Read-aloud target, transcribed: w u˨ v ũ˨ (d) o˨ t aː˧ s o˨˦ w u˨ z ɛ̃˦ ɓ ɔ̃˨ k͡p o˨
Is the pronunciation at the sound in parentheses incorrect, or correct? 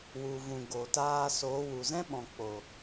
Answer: incorrect: ɡ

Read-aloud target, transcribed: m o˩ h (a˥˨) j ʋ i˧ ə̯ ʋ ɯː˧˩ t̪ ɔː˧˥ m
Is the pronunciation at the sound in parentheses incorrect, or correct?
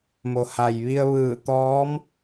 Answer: incorrect: a˩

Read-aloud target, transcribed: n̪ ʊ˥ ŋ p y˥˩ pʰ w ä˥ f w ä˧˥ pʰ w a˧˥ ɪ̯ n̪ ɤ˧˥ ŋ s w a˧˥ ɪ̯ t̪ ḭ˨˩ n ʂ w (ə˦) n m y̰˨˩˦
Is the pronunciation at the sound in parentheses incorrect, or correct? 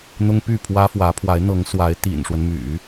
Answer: correct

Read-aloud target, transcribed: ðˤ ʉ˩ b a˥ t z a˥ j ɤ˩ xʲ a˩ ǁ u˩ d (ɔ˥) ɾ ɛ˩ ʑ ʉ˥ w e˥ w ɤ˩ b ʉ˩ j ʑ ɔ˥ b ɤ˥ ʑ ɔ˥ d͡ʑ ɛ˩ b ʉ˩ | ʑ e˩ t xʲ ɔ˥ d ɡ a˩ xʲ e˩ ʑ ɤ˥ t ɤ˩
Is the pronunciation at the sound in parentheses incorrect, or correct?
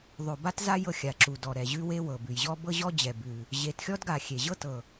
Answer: incorrect: ɔ˩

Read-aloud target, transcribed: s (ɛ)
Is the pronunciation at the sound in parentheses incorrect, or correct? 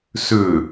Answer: incorrect: ʏ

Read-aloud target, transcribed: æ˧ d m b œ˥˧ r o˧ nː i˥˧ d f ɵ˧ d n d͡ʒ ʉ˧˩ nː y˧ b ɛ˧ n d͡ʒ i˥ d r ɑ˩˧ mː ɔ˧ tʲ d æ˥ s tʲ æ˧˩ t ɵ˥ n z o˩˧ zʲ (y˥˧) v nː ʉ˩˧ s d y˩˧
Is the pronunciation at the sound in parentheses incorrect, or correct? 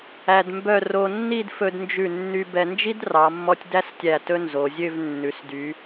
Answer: incorrect: ø˥˧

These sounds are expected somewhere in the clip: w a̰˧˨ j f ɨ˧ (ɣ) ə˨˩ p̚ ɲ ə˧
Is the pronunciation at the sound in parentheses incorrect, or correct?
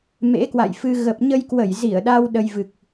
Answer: correct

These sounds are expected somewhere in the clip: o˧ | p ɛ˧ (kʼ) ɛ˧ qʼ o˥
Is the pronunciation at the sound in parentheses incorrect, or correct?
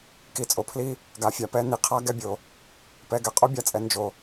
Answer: incorrect: ɡ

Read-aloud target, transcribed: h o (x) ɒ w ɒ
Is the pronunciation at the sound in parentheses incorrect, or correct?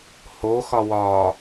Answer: correct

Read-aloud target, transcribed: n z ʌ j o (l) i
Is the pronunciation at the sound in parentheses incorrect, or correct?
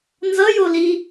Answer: correct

